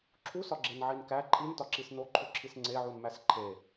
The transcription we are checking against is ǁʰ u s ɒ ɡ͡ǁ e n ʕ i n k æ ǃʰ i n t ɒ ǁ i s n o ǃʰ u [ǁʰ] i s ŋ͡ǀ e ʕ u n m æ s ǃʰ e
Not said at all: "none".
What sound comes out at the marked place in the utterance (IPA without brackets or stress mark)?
ǁʰ